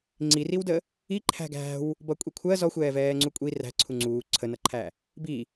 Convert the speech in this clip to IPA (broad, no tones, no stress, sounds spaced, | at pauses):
ŋ͡ǀ i r i w d ə | i ǃʰ æ̤ ɡ æ̤ w | b ʌ kʷʼ i kʷʰ ɜ z ɔ xʷ ɛː v ɛː ŋ͡ǀ u kʷʼ i r æ̤ ǀʰ u ŋ͡ǀ uː ǀʰ ə n ʌ ǃʰ æ | b i